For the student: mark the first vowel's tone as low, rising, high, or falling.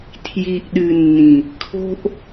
low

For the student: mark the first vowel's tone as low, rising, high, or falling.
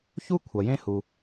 high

